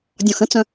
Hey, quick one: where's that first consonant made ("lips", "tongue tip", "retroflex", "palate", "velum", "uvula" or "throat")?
tongue tip